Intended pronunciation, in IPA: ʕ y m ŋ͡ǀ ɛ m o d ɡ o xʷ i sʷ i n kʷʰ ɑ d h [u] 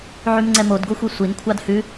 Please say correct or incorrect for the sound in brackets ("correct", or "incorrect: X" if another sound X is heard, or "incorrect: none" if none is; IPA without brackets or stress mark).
incorrect: ʉ